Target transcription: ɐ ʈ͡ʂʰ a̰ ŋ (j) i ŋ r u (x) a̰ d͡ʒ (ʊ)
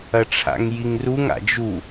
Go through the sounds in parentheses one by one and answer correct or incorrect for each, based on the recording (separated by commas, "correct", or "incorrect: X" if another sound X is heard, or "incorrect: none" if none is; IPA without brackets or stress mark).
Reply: correct, incorrect: ŋ, incorrect: u